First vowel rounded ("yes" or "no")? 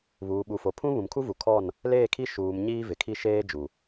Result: yes